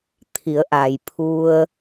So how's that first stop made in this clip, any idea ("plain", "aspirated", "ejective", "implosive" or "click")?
aspirated